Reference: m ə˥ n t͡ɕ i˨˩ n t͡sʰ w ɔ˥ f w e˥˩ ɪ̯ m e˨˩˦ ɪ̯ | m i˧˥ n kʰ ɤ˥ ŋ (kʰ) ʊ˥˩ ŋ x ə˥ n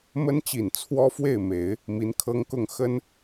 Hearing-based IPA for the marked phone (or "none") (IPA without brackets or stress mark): k